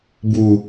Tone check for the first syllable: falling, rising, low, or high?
falling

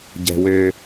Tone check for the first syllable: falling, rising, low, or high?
high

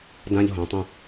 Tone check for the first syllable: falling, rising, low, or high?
high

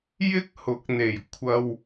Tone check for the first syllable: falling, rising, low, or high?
high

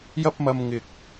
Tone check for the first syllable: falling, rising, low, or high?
high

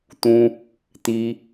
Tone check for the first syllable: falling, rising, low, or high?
low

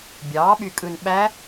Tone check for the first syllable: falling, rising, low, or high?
rising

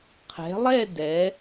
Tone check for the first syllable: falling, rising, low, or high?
rising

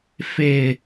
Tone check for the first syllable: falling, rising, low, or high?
low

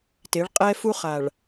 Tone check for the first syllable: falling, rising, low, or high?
rising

